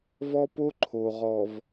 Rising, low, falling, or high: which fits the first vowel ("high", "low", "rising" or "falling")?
high